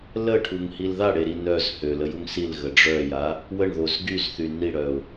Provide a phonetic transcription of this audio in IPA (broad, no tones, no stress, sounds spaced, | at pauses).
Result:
l ə ʈʰ u ŋ h i l ð a ɽ e ɾ i n œ z h ø l ə j u ŋ s i l ɣ ə ɖ͡ʐ œ j a | w ə ɳ ð o z ɡ y z θ y n i ɽ œ ʊ̯